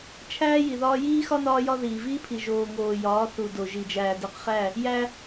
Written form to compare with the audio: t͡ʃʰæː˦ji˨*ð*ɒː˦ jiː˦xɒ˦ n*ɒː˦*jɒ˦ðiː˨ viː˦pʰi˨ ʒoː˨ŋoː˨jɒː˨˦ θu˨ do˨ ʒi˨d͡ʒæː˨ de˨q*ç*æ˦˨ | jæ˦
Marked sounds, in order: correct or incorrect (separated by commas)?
correct, correct, incorrect